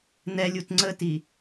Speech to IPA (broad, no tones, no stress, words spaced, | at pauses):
n̪ɛlʲut ŋ͡ǀəti